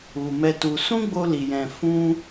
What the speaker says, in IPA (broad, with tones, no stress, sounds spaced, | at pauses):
u˨ m ɛ˧ t u˧ s ũ˦ ɡ͡b o˧ l i˨ j ɛ̃˨ f ũ˧